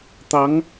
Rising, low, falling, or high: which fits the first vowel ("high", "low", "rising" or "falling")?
rising